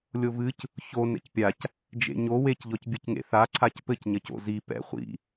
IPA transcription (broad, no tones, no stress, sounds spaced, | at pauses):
lʲ o v ɨ c | ç o n ɛ̰ c pʲ a c | d͡ʒ ḛ ɲ o w e c ʎ ɔ c bʲ ɨ c ŋ ḛ θ a ǀʰ a c p ɘ c ɲ ɐ c o̰ z i p ɛ̰ χʷ ḭ